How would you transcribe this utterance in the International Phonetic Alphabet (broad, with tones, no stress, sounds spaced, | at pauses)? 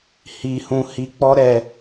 h i˦ h ũ˦ h i˦ k͡p ɔ˦ ɾ ɛ˧